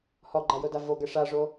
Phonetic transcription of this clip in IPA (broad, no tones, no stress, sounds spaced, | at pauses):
h ɔ ɡ͡ǃ a j o d a v o ɡ ɛ ʂ a ʐ o